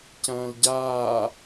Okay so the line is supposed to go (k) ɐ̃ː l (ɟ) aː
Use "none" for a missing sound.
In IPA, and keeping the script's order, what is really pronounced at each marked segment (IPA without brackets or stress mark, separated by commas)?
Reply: c, ɟ